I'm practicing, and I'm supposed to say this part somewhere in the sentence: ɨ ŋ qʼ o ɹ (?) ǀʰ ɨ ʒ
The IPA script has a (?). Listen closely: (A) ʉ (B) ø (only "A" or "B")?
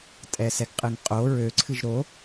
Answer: B